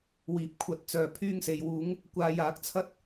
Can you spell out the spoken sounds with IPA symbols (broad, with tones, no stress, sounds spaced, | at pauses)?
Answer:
w iː˨˥ p̚ kʷʰ ɐ˨˥ t̚ t͡s œː˨ pʰ yː˧ ŋ s e˨ j w uː˨˧ ŋ | kʷ aː˧ j aː˨˥ k̚ t͡sʰ ɐ˥ t̚